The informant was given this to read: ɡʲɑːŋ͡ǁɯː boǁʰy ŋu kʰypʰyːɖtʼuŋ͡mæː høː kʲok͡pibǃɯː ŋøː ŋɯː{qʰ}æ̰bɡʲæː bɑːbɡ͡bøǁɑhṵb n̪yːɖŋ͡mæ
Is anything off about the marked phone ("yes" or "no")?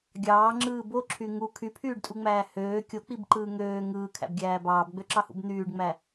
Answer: yes